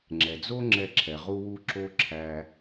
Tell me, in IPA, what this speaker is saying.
ŋ͡ǁ ɛ˩ d͡z o˥ ŋ͡ǁ ɛ˧ ǁʰ ɛ˩ ʁ u˥ w u˥ ǁ o˥ ǁʰ æ˧

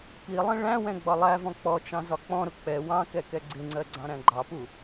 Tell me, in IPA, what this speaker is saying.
p i lˠ ĩ ɭ æ̃ w ɛ̃ ɡ͡b ɒ lˠ æ v ɔ̃ k͡p ɔ t͡ʃ ɑ̃ z ɒ k͡p ɔ̃ ɾ ʊ k͡p ɛ w ɑ̃ k ɛ k ɛ ɡ͡ǀ ɪ ŋ͡ǀ ɜ ɡ͡ǀ ɑ̃ ɾ æ̃ ɡ͡ǃ ɑ p u

